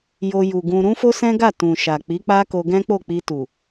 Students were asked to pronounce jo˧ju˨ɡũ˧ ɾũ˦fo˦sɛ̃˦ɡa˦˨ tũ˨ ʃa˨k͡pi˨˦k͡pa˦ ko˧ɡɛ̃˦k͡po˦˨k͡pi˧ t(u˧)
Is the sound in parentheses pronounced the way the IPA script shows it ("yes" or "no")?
no